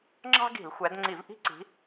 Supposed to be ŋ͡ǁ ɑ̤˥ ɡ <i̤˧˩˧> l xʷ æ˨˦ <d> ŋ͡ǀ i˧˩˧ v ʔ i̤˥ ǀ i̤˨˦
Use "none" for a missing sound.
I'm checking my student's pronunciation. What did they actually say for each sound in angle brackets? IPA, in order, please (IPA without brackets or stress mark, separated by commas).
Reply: i̤˧˩˧, d